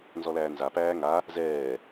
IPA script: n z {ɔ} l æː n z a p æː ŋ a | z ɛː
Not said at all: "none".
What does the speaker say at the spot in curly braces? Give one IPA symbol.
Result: ɔ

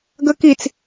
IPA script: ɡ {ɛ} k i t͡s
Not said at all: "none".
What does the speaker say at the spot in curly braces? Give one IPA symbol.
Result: ə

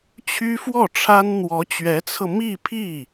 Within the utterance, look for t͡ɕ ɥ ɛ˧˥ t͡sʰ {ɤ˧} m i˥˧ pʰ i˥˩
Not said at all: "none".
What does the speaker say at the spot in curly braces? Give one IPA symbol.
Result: ɤ˧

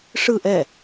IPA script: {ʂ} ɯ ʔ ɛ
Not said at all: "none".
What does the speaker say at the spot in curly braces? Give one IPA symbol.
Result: ʂ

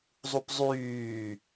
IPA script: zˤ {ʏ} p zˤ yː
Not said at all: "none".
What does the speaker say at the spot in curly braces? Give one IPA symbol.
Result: u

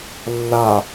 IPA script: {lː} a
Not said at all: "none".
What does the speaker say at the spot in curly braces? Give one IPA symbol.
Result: lː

